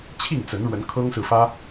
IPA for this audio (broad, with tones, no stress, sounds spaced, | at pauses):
t͡ɕʰ i˥˨ ŋ t͡s ə˨˦ n ɻ w ə˨˦ n kʰ ɤ˦ ŋ s ɹ̩˨ f ä˦